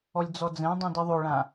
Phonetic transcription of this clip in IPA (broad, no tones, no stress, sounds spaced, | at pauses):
ɔ lʲ d͡z ɔ d͡z ɛ̃ dˤ ũ d i ðˤ o ɭ ã